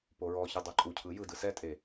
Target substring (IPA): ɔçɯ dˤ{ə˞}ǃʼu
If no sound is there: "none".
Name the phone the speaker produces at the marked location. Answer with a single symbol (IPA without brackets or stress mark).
ɤ